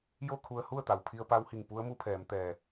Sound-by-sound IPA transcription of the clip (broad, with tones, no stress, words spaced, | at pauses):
jo˥˨kʰu˧ə̯hu˥˨ə̯t̪a˩w pʰi˧ə̯pa˧˥whi˧˩ŋ pu˧˥ə̯mu˧˥pʰɛː˩˧m t̪ɛː˧˩